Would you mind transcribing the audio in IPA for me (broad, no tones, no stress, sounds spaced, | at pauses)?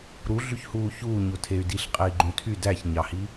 ɾ u ɮ y ç h uː ç uː ɲ o tʰ e y̯ d i ɬ qʼ e i̯ ɡ͡ǃ ũ tʰ y d æ ç ɲ ɑ h i